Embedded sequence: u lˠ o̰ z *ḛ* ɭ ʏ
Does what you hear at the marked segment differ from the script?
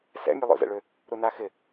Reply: yes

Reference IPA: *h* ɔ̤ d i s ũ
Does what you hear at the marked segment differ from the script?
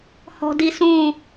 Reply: no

